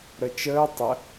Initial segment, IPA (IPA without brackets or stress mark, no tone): ɾ